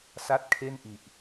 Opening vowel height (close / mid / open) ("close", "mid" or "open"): open